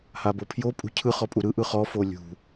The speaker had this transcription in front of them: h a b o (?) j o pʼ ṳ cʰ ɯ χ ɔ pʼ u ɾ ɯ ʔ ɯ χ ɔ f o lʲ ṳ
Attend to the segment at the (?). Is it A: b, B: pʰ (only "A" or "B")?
B